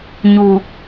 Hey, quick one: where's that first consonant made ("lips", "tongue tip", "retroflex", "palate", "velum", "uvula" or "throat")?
palate